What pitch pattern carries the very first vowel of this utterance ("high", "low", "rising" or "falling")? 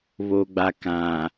low